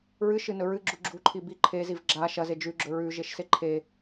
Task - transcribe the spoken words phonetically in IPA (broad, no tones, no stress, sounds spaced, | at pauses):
ɹ ɨ ʃ ɨ n ɵ ɹ ɨ ɡ͡ǁ u ɡ͡ǁ u ǃʰ i b i ǃʰ e z i v ɡ͡ǁ a ʃ ɐ z e d͡ʒ ʉ ɡ͡ǁ ɵ ɹ ʉ ʒ e ʃ s e ǃʰ e